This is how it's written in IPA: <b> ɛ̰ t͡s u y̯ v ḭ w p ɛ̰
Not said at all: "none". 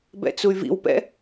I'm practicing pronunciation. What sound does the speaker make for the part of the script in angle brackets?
b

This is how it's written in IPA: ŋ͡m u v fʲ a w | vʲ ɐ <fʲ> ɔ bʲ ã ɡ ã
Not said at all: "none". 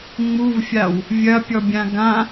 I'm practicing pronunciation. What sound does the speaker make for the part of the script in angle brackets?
pʲ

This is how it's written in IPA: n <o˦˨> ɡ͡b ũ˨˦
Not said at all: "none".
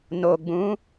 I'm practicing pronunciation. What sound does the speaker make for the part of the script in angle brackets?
o˨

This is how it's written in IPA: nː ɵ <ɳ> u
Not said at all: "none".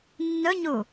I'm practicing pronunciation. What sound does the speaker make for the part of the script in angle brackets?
ɲ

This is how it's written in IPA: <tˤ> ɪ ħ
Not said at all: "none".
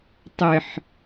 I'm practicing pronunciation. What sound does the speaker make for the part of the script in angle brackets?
tˤ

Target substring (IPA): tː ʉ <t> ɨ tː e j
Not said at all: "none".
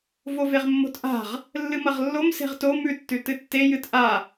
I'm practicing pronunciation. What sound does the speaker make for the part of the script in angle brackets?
t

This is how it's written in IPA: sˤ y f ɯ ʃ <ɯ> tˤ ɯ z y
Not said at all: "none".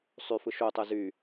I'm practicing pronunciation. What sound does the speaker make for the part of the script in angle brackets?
u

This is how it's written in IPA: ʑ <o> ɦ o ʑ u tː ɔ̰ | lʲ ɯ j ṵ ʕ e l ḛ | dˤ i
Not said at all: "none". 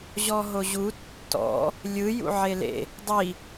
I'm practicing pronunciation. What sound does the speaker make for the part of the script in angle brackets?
ɔ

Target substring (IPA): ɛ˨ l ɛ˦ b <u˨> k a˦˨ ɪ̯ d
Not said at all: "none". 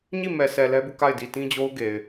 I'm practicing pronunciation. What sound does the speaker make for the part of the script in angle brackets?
u˦˨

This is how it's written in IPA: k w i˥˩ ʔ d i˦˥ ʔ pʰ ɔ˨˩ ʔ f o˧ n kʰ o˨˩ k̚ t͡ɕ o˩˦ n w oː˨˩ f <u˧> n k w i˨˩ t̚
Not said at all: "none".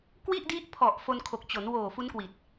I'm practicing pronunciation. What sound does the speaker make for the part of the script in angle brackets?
u˦˥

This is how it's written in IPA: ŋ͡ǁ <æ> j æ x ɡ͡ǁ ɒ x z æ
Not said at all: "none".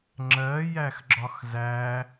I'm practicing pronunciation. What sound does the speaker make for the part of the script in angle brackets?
ɜ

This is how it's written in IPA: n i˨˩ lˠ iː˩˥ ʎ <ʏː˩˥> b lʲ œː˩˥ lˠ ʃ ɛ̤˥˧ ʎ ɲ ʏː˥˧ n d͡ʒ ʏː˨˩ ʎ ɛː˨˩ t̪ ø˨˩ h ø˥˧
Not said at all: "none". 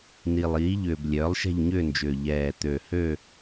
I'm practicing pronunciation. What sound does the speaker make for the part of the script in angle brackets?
ʏː˨˩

